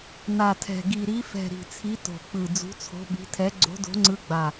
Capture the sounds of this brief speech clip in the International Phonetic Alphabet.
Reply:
n a˨˩ tʰ ɛ̤˨˩ ɡ i˨˩ ɾ i˨˦ f ɛ̤˨˩ ɾ i̤˨˩ t͡sʰ i˨˦ t o̤˨˩ k͡p ɯ˨˩ d͡z ṳ˨˦ t͡sʰ o̤˨˦ ɓ i̤˨˦ tʰ ɛ˨˦ ɡ͡ǀ o̤˨˦ d o̤˨˦ ŋ͡ǀ ɯ˨˦ ɡ͡b a˨˩

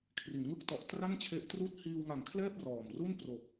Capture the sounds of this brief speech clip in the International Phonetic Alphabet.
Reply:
kʰ r i˩˦ n ŋ ɯ˦˥ k̚ t ɔ˨˩ ʔ t r a˥˩ n t͡ɕʰ e˦˥ ʔ t r uː˥˩ t̚ h iː˧ w ŋ a˨˩ ŋ kʰ l ɛː˥˩ p̚ r ɔː˨˩ m r u˥˩ n p r o˨˩ k̚

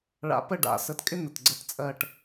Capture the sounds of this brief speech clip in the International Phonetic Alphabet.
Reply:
ɭ a̰˧ p ə˥˧ ɖ a̰˧˩ s ə˧ t kʼ ɪ˥ n̪ ə˧˩ t ɡ͡ǀ ə˥˧ t t͡sʼ ɜː˥˧ ʈ

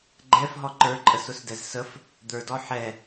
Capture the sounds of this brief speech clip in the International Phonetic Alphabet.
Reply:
ɡ͡ǃ ɛ f ɦ ɔ ǃ ə˞ ǃʼ ə s ʊ s d ɛ z s ə f | d̪ ə˞ d ɔ ħ ɛ

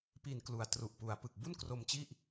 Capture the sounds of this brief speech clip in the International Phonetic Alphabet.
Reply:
p i˨˩ n k l u˨˩ a̯ t r u˨˩ ʔ p u˩˦ a̯ p ɯ˨˩ k̚ b u˥˩ n k r o˧ m t͡ɕ i˥˩ ʔ

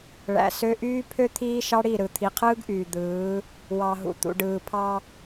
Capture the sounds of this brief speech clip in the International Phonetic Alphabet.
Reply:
ɭ æ̰˨ s ø˦ ʔ yː˦ pʰ ø˦ t̪ʰ iː˦ ʃ ɑ˦ ɽ i˦˨ ɾ ɯ˨ t̪ʰ i˨ qʰ ɯː˦ ɡ ʔ yː˨ d̪ ɯː˨˦ | w ɑ˨ ɦ ṵ˨ t̪ ṵ˨ ɖ ɯː˨ pʰ ɑ˦

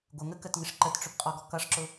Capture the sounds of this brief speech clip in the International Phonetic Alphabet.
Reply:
ɡʷ ə ŋ ə k ə t ŋ ɪ ʂ ǃ ə t ʈ͡ʂ ʊ p qʼ ɔ ɡ ɔ k ʌ ʂ ǁ ʊ

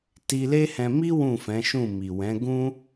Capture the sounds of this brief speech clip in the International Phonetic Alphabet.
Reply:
t i˧ l e˦ h ɛ̃˧ m i˦ w ũ˦˨ f ɛ̃˨˦ ʃ ũ˦˨ m i˨ w ɛ̃˨˦ ɡ ũ˦

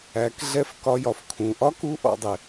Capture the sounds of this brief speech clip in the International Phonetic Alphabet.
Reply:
æ˩˧ k ɮ ɛ˧˥ f k ɒ˧ j ɒ˩ f kʰ ũ˩˧ ʔ ɒ˥ k u˧˥ ʔ ɔ̰˩˧ dˤ ɪ˩

